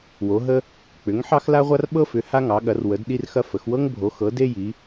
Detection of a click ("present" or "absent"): absent